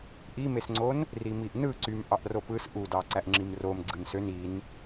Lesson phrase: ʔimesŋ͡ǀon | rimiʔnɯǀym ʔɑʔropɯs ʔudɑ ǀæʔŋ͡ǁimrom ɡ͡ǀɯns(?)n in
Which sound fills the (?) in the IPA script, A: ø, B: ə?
A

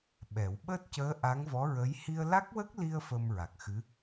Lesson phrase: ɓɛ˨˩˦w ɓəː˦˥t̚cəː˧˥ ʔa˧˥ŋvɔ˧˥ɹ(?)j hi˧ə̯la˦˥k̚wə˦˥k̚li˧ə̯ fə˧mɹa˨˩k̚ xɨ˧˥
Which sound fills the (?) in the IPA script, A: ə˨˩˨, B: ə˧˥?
B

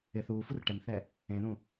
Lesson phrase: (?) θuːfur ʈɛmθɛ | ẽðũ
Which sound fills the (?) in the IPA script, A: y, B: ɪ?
B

